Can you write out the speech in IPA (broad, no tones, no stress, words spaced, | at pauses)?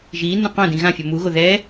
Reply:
ʒiːnːũ qõdĩ ɣãfʲʌ muɣo ðɛ